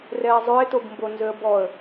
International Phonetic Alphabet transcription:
rɛːzˤʉɪ̯tobmbo nzøə̯bɔə̯

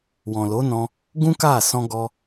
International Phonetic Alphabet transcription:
wɔ̃˨lo˨˦nɔ̃˧ | ɡũ˦ka˦˨ sɔ̃˧ɡɔ˧

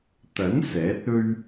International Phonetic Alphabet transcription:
t̪ɐ˨˥n sɛː˨˥t̚ɵ˥ɥ

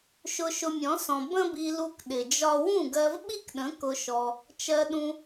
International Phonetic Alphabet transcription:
ʃʊ˧ʃʊ˧mʲɔ̃˨˦sɔ̃˨ bə̃˦bi˧lu˧k ɗɪ˨d͡ʒɒ˦ wũ˦˨ɡɜ˧vɓi˦kɗə̃˨˦ kʊ˧ʃɔ˧ | t͡ʃɜ˧ɗũ˧

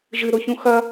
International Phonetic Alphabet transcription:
ʒɨɾoçũ xɐ

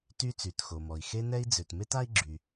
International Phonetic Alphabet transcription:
ty˦ t͡sy˩txo˩mɔ˩i̯ xe˦nɛ˦i̯ d͡zø˩tme˥t a˥i̯ɡ͡ǁy˩

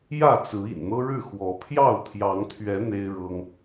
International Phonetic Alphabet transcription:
jä˥˨t͡sɹ̩˨˦ ḭ˨˩nn̪ɤ˦ɻɻ̩˥˨ xwɔ˨˦ pʰjɑ˥˨ʊ̯t̪ʰjɑ˨˦ŋt̪ʰɥɛ˨˦ n̪e˦ɪ̯ɻɤ˦ŋ

